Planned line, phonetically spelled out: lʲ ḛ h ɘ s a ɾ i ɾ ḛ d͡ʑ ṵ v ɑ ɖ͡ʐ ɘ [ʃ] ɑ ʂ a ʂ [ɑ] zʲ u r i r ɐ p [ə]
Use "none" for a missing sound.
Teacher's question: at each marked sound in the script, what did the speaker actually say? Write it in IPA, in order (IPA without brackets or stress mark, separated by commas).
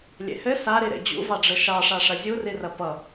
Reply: ʃ, ɐ, ʌ